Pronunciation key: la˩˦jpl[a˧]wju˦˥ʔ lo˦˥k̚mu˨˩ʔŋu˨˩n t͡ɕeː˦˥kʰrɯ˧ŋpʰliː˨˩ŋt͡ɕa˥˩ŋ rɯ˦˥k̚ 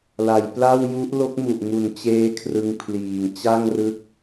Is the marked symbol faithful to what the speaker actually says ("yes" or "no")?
no